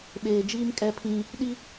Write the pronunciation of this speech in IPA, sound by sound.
ɓ eː˨ d͡ʒ iː˦ m kʼ ɛ˦ pʰ ĩ˦ | ɗ i˦

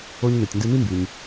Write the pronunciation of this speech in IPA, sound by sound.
o˧ ɲ n e˩ tʲ n d ɯ˧ n y˥ m b y˩ ɲ

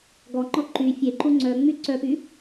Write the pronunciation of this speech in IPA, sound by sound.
ɡ ɔ ŋ͡ǃ ɔ ǃ y fʲ e ǃ u ŋ͡ǀ œ ŋ͡m y ǀ œ p y

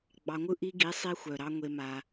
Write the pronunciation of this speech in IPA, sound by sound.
ɡ͡b ɑ˧ ŋʷ ɯ˦ ʔ i˧ ɡ i˨˦ sˤ i˧ xʷ œ˨ ɾ ɑ˧ ŋʷ e˧ m a˧

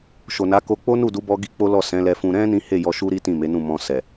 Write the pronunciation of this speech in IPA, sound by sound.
ʃ o˨ n a˨˦ k o˧ k͡p o˦ n u˦˨ d u˨˦ b ɔ˧ ɡ i˦ k͡p o˦ l ɔ˦˨ s ɛ̃˨˦ l ɛ˧ f ũ˧ ɾ ɛ̃˦ n ĩ˦ h e˦˨ j ɔ˧ ʃ u˦ ɾ i˦ t ĩ˦˨ m e˨˦ n ũ˦˨ m ɔ̃˧ s ɛ˨

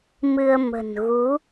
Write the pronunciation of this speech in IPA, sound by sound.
m ɨ˧ ə̯ m ə̤˨˩ n ɣ u˨˦

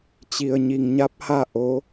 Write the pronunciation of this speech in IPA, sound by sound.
t͡ɕ i˩ ə̯ ɲ i˩ ŋ ɲ a˧˥ p̚ h a˥˨ ʔ o˧˥

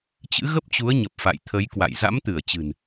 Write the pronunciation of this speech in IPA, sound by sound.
t͡ɕ ɨ̰˧˥ ɣ ə˦˥ p̚ t͡ɕ u˨˦ ə̯ ɲ ə˨˩ p̚ f a̰˧˨ j t̪ʰ ə˨˦ j k w a̰˧˨ j z a̰˧˥ m t̪ ɨ˧˩ ə̯ t͡ɕ ɨ̤˨˩ n

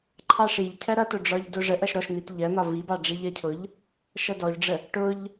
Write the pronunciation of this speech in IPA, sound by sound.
ǃʰ ɑ ʂ i ʎ cʰ ɜ ɾ ʌ t ʊ ɖ͡ʐ ɒ ʎ d ʊ ʐ ə ʔ ʌ ʃ ɾ ɔ ʃ n̪ i t ʎ ɜ n̪ ɒ v i b ɑ ɖ͡ʐ i ʎ ɜ cʰ ʊ ʎ | ʃ ʌ d ɔ ʎ ɖ͡ʐ ə | ʈ ʊ ʎ

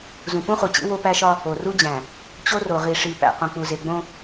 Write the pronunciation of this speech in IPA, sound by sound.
z ũ˨ p ũ˦ χ u˨ t͡ɕ ḭ˦ w o˦ p æ˦ ʃ ɒ˦ | o˨ r u˦ d͡ʑ æ̃˨ | t͡ɕ o˦ r o˨ ʁ i˨ ʂ i˨ p æ̰˨ q õ˨ k͡p u˨ z e˨ ɡ͡b õ˦

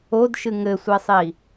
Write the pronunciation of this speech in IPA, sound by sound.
o d ʃ ɨ ŋ ɘ sʷ ɛ sˤ i

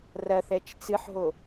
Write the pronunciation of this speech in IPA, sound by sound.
r ɐ θ ɛ t͡ʃ t͡s ɨ ħ ɦ o

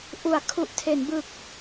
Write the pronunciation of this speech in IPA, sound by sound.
ʔ u˩˦ a̯ kʰ u˨˩ ʔ tʰ e˩˦ n b ɯ˨˩ k̚

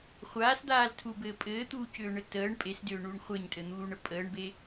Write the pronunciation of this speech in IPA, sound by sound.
χʷ aː s d̪ aː l tʰ u b ɘː pʼ ɘː t̪ uː c ʏː ɳ ɘ t əː ɳ pʼ e s d ʏː ɳ uː ɳ χʷ e ɲ tʼ ɘ n̪ uː ɳ ə pʼ əː ɳ b e

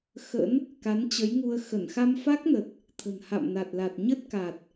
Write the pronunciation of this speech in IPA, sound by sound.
x ə̰˧˥ n | k a˨˦ n t͡ɕ ə˨˦ j ŋ u˧ ə̯ x ə˧˩ n x a˧ m f a˦˥ k̚ n ə˨˩ t̚ | t̪ʰ ə̤˨˩ n h a̰˧˨ m n a˨˩ t̚ l a˨˩ t̚ ɲ ə˦˥ t̚ k a˨˩ t̚

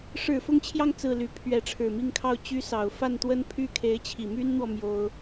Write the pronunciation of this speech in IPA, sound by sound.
ʂ ɻ̩˨˩ f ʊ˥˧ ŋ t͡ɕʰ j ɑ˥˧ ŋ t͡s ɹ̩˥˩ l y˧˥ pʰ ɥ ɛ˧˥ ʈ͡ʂʰ ɻ̩˨˩ m i˥˧ ŋ kʰ ɑ˥˩ ʊ̯ t͡ɕ y˥ s ɑ˨˩ ʊ̯ f a˥˩ n t̪ w ə˥ n pʰ y˥ kʰ e˧˥ ɪ̯ t͡ɕʰ i˨˩ m y˥ n n̪ w ɔ˨ m j o˥ ʊ̯

